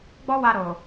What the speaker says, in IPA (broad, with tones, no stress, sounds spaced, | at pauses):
ɡ͡b ɔ˦ w a˧ ɾ o˨